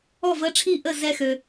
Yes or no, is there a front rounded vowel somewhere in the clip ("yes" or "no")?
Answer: yes